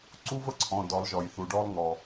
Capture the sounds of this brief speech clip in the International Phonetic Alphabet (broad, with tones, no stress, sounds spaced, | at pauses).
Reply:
ǀ u˥ v ə˥ ǀʰ ɔ̃˩˧˩ d ɔ˨˩˦ lˠ ʒ ɔ˩ j θ u˩ ɖ ɔ˥ lˠ ŋ ɔ˩